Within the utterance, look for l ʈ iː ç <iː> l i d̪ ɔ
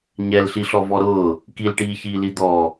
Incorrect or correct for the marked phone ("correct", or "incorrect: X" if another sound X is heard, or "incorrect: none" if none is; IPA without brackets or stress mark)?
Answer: correct